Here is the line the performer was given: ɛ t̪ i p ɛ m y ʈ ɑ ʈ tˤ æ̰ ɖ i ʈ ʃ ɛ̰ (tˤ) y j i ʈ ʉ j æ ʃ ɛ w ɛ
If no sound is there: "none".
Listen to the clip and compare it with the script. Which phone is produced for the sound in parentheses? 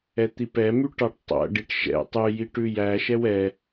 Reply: tˤ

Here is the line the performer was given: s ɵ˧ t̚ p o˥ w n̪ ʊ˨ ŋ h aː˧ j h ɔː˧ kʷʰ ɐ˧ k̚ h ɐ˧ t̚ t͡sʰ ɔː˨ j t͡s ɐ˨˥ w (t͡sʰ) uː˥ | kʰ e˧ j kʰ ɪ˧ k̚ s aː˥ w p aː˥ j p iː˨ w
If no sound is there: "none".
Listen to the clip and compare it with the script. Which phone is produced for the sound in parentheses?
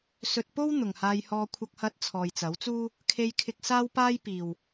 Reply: t͡s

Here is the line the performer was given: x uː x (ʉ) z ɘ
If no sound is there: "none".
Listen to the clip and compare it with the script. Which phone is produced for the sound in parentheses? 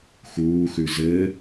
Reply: ʉ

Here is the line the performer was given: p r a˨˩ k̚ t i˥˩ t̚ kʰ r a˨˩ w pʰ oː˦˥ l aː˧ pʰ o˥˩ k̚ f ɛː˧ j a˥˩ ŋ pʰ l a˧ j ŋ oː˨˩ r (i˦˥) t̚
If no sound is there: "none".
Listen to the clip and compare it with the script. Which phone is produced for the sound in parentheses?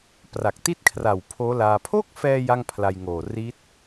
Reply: i˦˥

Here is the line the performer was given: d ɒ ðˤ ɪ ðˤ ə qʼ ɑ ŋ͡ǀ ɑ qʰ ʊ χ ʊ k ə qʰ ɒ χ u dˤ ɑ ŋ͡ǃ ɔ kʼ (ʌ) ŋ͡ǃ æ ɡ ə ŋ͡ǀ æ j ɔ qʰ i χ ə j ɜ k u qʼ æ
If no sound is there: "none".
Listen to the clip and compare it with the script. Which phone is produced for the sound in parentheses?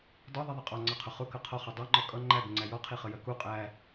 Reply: ʌ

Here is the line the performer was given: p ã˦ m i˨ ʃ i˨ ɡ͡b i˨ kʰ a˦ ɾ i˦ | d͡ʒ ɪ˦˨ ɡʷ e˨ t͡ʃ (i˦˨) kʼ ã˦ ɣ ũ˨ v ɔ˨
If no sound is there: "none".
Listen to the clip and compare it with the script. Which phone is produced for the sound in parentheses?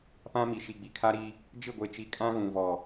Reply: i˨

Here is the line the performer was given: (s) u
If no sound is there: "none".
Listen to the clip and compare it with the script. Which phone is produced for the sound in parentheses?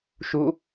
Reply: ʃ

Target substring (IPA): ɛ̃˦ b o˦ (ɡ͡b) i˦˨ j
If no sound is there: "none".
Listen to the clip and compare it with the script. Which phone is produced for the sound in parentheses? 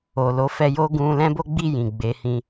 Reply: ɡ͡b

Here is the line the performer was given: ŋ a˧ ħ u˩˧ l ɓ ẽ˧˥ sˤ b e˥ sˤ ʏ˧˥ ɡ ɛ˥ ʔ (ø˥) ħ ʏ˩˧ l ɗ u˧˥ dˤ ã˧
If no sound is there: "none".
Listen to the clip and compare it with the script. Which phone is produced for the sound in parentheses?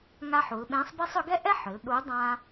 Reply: ɛ˥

